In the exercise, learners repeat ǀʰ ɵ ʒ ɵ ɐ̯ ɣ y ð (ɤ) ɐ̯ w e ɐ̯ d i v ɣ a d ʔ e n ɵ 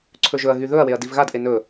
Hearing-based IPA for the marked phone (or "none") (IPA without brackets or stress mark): ɵ